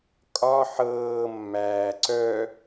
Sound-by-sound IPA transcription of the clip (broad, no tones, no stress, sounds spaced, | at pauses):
kʼ ɒ ħ ɤː mː æː ǀ œ